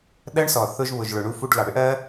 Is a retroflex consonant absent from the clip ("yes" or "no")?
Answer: no